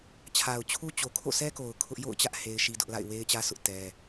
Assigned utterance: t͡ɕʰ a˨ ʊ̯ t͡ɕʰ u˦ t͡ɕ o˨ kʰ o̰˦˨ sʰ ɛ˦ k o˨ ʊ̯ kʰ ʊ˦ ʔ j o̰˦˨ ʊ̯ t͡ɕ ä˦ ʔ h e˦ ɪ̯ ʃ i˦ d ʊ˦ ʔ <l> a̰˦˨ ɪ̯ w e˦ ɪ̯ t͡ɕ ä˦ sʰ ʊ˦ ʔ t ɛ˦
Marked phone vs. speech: correct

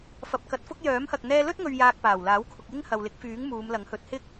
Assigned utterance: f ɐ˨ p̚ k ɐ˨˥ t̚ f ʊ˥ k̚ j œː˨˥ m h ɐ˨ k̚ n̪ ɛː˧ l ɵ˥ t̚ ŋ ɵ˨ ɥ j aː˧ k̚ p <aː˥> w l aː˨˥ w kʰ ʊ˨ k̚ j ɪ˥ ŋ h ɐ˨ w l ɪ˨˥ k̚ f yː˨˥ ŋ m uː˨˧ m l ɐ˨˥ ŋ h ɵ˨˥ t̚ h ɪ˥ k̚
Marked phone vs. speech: incorrect: aː˨˩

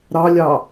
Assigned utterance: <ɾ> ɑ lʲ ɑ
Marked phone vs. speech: correct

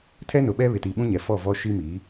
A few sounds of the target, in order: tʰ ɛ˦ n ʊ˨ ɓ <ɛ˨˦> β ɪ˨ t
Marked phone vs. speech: incorrect: ɛ˦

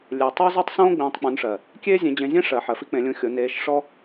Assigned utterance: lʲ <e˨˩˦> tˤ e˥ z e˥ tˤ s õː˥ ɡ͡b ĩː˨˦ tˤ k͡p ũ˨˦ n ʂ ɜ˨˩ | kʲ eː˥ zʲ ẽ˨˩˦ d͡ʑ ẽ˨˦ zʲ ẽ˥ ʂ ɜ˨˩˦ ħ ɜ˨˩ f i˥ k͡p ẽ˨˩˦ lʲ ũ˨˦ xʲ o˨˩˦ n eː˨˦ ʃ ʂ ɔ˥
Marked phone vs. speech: correct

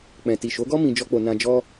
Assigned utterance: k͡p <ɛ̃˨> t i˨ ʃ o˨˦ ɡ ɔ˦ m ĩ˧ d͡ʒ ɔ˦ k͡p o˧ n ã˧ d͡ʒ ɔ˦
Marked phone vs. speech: correct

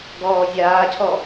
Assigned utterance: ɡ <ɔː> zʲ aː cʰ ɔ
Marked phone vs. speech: correct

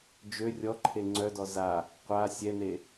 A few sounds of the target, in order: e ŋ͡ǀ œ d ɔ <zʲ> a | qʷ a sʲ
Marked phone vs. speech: incorrect: z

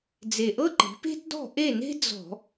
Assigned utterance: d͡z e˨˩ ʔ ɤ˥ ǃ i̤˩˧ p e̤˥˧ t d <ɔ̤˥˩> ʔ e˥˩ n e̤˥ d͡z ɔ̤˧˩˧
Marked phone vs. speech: correct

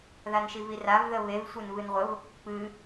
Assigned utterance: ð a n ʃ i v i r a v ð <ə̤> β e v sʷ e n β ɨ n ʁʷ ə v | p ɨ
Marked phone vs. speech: incorrect: ə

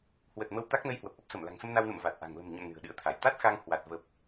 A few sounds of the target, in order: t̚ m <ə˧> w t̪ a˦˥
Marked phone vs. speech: correct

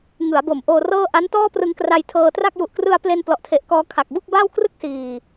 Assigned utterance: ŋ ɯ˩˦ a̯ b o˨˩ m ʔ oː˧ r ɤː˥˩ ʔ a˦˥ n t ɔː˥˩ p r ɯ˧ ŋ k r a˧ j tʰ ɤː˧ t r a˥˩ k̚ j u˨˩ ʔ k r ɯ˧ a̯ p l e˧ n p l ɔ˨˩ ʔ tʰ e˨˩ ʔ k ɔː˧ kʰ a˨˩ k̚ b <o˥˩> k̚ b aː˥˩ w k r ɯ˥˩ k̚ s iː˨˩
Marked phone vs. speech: incorrect: u˥˩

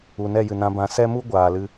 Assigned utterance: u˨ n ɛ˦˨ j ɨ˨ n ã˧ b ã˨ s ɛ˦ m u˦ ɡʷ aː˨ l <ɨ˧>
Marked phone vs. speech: correct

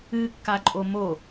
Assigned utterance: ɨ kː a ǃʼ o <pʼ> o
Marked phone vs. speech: incorrect: m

